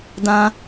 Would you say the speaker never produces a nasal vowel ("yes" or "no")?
no